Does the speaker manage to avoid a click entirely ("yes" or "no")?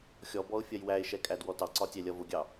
no